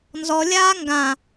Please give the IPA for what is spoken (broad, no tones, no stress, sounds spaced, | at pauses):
n z ɔ lʲ aː ŋ ɡ ã